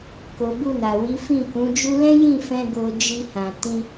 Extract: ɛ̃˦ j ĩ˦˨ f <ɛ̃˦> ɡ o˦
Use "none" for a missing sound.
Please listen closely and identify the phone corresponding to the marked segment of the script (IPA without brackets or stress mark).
ɛ̃˧